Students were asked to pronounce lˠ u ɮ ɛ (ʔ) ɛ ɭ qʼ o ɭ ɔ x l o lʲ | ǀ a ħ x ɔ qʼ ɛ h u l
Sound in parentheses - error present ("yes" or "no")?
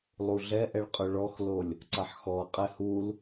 no